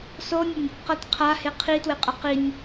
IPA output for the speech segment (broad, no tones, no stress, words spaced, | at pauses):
sonʲʌnʲ | qʌt qʰahe qʰitweqʼʌ qinʲ